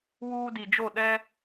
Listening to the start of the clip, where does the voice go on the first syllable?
high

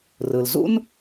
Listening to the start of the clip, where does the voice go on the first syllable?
low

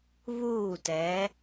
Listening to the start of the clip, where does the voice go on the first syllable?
falling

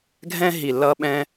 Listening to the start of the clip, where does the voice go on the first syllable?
high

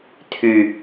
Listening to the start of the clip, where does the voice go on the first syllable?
low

